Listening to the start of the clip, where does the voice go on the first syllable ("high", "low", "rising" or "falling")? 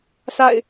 falling